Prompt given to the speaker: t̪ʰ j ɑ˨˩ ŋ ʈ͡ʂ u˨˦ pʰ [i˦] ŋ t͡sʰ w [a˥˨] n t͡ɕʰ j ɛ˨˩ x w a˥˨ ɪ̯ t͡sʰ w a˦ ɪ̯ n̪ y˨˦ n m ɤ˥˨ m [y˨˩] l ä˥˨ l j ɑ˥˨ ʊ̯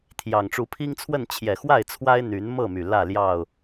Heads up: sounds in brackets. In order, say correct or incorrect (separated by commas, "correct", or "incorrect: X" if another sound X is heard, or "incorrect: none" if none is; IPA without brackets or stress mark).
correct, incorrect: ə˥˨, correct